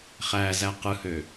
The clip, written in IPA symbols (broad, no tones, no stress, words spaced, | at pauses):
χæzæ qɯhø